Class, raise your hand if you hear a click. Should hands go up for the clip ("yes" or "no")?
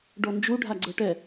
yes